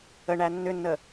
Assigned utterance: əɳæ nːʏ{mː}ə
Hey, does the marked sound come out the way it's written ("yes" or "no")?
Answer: no